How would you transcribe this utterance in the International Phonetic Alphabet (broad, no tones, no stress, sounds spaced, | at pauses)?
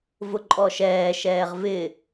v ʊ ǃʼ ɔ ʃ ɛː ʃ ɛː ʁ v ɪ